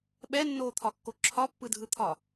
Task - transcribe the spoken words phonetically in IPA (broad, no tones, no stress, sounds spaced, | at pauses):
ɓ ɛ nː oː t̪ʰ ɒ kː o ǁʰ ɒ pː ɯ dʱ ɯ t̪ʰ ɒ